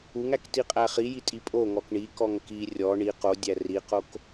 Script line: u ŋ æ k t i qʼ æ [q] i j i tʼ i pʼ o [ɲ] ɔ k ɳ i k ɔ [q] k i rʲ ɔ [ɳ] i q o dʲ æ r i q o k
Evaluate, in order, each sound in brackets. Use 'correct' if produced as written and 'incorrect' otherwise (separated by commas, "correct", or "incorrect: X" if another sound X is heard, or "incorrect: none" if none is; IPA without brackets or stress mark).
incorrect: χ, incorrect: ŋ, incorrect: ŋ, correct